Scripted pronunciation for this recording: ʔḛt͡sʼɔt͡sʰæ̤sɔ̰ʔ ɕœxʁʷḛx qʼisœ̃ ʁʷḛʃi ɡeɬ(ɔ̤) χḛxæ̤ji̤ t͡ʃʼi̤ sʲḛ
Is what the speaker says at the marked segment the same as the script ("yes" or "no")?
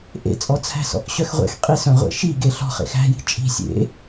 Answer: yes